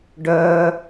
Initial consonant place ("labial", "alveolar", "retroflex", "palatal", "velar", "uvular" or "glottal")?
retroflex